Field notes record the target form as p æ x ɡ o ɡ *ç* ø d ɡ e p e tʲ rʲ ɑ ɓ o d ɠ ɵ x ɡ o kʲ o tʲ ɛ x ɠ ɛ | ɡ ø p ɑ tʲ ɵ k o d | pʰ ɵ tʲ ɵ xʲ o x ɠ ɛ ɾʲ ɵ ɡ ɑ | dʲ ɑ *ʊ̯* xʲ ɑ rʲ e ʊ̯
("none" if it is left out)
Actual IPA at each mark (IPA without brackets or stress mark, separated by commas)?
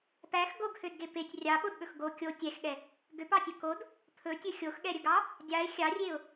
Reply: h, ɪ̯